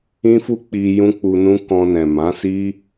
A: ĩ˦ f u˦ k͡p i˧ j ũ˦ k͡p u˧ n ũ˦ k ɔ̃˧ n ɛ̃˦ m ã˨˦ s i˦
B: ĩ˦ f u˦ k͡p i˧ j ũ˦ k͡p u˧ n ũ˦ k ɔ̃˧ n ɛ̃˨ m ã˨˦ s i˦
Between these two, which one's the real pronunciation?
B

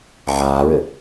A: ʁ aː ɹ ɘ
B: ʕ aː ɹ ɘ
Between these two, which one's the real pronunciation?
B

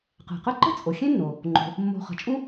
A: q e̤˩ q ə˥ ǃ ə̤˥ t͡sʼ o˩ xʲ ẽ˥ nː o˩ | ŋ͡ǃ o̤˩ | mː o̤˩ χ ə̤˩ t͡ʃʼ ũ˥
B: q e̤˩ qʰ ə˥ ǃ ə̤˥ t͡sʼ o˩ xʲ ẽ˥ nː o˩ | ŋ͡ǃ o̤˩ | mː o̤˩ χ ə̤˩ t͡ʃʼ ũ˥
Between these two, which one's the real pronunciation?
A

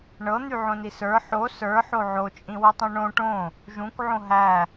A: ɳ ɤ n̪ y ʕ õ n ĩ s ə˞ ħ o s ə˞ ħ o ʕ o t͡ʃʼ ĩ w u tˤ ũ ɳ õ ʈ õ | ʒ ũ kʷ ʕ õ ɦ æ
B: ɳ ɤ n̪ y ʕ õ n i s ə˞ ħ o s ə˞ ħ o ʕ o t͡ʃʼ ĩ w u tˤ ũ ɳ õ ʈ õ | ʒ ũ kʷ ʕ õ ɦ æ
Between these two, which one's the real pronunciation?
B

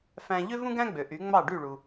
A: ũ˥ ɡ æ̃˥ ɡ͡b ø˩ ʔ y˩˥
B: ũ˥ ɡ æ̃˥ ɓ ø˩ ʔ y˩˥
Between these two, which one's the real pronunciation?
A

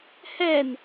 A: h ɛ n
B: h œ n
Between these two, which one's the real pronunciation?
A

